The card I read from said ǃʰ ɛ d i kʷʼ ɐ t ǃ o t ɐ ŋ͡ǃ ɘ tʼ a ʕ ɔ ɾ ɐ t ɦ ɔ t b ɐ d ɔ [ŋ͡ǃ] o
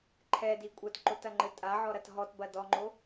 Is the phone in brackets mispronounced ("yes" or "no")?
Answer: no